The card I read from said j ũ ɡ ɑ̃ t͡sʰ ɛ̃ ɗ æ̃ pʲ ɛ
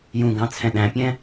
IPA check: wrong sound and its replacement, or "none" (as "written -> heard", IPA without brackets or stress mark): ɛ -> ɛ̃